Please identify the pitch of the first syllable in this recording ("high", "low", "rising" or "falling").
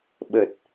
low